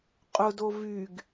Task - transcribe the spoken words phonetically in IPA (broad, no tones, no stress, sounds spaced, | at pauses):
qʼ ʊ d o v y ɡ